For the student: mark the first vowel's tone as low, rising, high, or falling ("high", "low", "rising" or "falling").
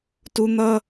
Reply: high